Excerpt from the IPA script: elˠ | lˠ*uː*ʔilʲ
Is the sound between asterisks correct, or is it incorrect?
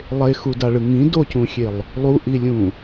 incorrect: u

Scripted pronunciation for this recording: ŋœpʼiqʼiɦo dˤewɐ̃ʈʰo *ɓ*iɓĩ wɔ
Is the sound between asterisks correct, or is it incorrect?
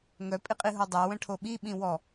correct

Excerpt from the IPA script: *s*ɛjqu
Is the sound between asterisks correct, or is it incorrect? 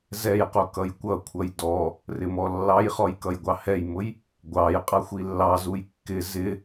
incorrect: z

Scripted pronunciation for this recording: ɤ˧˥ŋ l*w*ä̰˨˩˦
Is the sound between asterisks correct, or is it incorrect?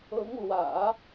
correct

